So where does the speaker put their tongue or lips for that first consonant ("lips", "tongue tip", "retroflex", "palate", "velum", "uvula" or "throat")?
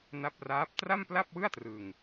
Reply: tongue tip